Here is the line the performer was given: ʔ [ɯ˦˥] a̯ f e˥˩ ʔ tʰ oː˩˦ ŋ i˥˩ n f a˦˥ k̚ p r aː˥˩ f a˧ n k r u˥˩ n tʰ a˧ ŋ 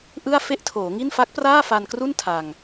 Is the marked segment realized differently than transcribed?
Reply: yes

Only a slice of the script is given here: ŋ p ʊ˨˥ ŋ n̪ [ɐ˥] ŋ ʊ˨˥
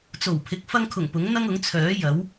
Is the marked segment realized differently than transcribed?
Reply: no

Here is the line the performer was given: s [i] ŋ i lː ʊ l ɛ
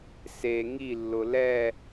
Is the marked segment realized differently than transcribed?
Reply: yes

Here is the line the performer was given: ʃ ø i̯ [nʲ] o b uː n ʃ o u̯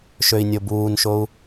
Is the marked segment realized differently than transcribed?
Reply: no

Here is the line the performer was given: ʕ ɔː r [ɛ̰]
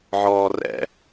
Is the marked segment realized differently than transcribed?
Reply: no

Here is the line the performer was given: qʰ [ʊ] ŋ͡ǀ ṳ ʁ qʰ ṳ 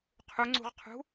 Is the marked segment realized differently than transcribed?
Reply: yes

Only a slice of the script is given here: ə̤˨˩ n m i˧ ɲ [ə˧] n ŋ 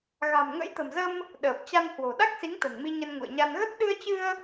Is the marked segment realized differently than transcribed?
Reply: no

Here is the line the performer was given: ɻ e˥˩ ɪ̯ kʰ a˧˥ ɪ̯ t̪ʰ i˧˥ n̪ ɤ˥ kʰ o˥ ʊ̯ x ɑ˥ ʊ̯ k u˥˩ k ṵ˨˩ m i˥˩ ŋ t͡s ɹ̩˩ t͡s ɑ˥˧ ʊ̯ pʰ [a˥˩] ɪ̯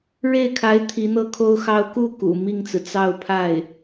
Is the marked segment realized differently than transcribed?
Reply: no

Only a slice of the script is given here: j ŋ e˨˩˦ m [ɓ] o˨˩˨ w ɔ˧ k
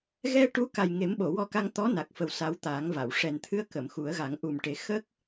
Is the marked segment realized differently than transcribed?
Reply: no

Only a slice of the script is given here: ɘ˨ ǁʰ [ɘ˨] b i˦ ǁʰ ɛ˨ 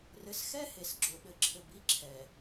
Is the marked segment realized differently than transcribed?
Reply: no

